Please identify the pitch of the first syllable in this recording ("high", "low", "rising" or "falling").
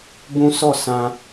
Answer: high